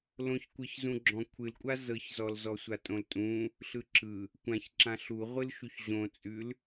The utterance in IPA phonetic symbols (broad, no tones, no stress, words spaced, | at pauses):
lõçkʷɨç zũɡ͡ǁɔ̃kʷʰɨlkʷʼa zɤçzɔlzɔsʷa tʼõltʼũ | ɬɯǁɯ | kʷãçǁã ɬuʁʷɨl ʃuçʑõt͡sʼʉl